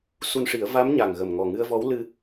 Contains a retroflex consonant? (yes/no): yes